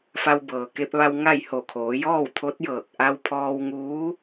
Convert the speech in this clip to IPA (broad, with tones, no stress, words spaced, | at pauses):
fa˧wbɤː˩ke˧p̚ʋa˧w ŋa˥˨j ho˧˩kʰoː˩˧ jɔː˥˨wt̪ʰo˧˥t̚jɤː˧˩k̚ ʔa˧wpʰɔː˧wŋuː˧˥